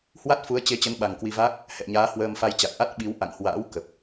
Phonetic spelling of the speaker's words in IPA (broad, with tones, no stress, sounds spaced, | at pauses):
h w a˦˥ t̚ f u˨˦ ə̯ t͡ɕ e˨˦ t͡ɕ ə˨˦ n ɓ a˨˩ ŋ k w i˧ v a˦˥ k̚ | h ɛ̰˧˨ ɲ aː˨˦ h w əː˧ m f a˧ j t͡ɕ a˨˩ k̚ ʔ a˦˥ t̚ ɓ i˨˦ w ʔ a̰˧˨ ŋ h w a̰ː˧˥ w k ə˨˩ p̚